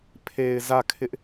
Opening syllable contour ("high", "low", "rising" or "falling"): low